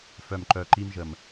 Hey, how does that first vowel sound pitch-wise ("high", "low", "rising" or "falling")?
low